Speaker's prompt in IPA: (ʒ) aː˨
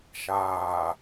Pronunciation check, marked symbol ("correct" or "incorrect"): incorrect